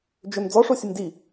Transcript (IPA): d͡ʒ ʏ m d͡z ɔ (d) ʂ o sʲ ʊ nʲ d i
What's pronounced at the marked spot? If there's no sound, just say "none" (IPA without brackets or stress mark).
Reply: none